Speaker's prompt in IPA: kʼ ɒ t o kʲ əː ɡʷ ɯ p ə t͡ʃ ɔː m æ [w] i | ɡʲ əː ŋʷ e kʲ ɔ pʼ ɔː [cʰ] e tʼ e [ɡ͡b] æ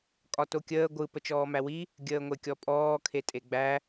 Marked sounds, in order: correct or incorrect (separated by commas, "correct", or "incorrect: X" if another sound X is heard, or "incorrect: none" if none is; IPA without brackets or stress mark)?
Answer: correct, incorrect: kʰ, correct